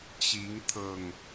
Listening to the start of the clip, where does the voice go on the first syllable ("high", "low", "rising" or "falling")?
rising